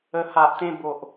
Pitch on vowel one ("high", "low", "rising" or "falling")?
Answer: low